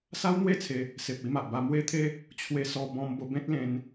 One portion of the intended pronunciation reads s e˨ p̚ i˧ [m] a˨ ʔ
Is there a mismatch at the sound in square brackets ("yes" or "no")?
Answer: no